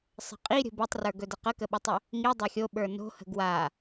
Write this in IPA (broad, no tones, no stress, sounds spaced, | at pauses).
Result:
sˤ ə̤ qʼ i ɾʲ ə̤ b i tˤ r ə˞ ɡ ɵ d ə q ə k ə ɓ ə tˤ ɵ | ŋ i dˤ a xʲ o ɓ ə˞ n o̤ h ə̤ ɡ w a